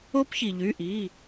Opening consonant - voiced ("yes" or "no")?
no